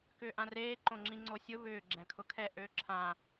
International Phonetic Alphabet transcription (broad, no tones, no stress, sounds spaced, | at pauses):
k ʏː ʔ ã r eː ǃ õ ŋ͡ǁ ĩ ŋ͡ǀ o sʲ ʊ β ʏː ɡ͡ǁ ɛ̃ kʰ ʊ kʰ ɛ ʔ ø ǁʰ ã